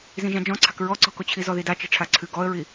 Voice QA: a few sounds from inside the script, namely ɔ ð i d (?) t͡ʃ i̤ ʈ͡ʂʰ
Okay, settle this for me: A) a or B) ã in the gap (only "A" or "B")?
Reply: A